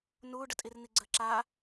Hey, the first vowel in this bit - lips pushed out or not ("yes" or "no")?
yes